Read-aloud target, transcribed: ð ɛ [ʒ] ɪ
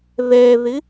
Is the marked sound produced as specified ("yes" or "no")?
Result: no